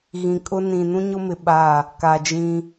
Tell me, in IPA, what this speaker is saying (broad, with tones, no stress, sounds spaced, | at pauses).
ɣ ĩ˨ kʼ ʊ˦ n ĩ˨ n ũ˦ ɲ ʊ˦ m ɪ˨ ɓ a˦˨ | k a˨ d͡ʒ ĩ˦